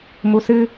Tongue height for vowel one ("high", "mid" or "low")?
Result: high